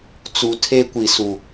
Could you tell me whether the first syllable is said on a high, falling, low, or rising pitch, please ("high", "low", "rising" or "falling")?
rising